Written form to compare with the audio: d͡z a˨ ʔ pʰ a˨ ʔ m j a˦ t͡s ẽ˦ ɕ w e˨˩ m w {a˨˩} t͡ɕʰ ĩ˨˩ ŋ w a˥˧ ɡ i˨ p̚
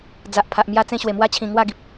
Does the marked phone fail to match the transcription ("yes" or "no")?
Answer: yes